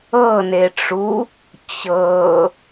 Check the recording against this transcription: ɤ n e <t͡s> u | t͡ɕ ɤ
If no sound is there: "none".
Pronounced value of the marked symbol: ʈ͡ʂ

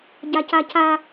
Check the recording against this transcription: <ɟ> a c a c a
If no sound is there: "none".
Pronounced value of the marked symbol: ɟ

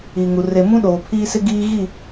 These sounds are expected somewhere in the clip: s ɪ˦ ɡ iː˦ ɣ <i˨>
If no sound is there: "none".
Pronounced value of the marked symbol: i˦˨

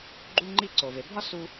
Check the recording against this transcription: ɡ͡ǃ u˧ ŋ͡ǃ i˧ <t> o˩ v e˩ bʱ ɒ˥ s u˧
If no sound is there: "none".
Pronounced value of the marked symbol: ǀ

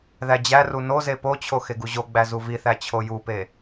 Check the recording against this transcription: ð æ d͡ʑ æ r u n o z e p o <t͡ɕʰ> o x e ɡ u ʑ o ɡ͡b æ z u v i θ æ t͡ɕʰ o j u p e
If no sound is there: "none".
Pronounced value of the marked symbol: t͡ɕʰ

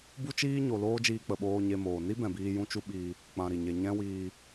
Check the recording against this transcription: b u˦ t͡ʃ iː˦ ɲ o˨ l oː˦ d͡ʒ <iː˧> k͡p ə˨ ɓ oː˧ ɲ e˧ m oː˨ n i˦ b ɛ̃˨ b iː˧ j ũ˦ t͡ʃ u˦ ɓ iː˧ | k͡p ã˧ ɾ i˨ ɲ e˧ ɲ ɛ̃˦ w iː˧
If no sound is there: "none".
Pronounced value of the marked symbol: iː˧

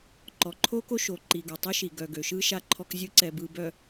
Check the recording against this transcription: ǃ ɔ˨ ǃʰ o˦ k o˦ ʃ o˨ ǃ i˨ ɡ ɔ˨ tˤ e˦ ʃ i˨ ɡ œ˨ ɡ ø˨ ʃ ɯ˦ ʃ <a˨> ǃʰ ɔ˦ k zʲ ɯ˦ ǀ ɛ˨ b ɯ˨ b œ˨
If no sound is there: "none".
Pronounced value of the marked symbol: a˦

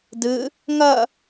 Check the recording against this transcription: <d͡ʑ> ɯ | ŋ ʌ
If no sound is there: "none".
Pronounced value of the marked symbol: d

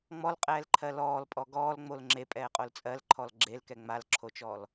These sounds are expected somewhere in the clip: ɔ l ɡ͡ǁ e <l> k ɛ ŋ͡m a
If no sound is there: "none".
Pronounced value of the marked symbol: l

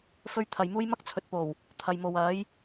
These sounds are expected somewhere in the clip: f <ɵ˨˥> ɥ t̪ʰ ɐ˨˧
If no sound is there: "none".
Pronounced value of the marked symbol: ɵ˥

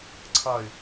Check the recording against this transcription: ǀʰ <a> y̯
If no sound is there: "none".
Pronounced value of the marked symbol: ʌ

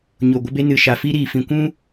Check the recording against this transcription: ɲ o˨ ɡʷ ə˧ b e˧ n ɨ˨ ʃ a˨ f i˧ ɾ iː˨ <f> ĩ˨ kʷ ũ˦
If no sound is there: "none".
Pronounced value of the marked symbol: f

